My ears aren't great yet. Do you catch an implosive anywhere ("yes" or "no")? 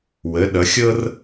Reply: yes